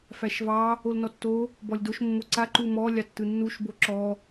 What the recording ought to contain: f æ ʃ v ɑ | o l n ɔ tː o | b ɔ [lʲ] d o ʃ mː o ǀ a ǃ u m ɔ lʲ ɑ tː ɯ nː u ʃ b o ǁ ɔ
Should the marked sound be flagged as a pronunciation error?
no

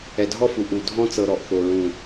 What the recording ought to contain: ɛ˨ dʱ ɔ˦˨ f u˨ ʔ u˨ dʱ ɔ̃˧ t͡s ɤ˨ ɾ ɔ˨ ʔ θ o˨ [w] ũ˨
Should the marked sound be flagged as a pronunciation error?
yes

